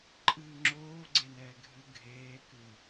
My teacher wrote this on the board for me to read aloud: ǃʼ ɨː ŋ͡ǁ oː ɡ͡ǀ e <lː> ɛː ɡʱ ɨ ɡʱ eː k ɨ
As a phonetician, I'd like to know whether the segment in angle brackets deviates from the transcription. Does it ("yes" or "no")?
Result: yes